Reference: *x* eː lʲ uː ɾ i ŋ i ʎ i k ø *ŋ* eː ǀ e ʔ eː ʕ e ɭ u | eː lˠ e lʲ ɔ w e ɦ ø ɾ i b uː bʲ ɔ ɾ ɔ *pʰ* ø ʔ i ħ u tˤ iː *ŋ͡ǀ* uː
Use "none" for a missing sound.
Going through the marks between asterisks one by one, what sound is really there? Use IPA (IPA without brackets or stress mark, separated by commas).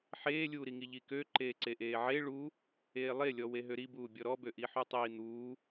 ħ, ǃ, b, n̪